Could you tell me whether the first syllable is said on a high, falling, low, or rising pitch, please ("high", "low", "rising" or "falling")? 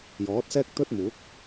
rising